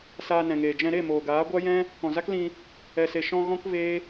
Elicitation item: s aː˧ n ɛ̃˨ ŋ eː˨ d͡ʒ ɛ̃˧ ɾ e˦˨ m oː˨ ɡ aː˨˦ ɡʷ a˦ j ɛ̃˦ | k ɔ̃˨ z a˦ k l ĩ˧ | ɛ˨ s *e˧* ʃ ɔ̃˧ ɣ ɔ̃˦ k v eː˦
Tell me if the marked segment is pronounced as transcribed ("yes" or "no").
no